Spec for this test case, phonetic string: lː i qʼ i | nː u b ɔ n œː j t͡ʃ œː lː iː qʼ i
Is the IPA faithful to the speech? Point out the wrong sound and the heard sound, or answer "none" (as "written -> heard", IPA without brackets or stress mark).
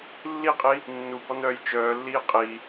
none